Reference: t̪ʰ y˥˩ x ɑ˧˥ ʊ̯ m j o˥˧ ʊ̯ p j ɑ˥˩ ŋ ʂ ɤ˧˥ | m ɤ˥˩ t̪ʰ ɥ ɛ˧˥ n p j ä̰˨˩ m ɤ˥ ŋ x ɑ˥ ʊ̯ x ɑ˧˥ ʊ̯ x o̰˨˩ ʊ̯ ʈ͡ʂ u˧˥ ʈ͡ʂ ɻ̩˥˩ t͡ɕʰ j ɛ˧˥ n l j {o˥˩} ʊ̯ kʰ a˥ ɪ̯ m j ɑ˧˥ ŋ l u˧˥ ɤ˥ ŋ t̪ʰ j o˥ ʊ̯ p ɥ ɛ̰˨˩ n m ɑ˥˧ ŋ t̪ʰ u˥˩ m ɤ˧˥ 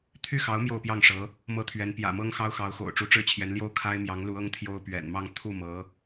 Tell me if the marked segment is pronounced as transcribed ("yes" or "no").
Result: no